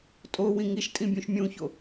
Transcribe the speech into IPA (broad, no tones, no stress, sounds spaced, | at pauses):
tʼ o w ĩ ŋ i ʃ tʼ ĩ bʲ ũ ʃ mʲ ũ ç o